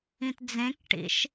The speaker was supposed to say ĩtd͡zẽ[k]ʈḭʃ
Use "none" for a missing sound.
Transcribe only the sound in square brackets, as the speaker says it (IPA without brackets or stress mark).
k